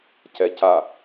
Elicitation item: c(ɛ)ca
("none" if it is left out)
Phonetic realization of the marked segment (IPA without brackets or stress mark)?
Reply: ɛ